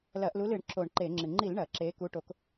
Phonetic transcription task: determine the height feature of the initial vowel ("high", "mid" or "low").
low